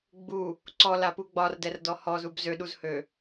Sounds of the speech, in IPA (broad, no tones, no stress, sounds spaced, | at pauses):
ɡ͡b u | ǀ ɔ l a p u ɡ͡b ɒ r d ɛ r d ɔ h ɔ z u b z ø ɗ u z h ø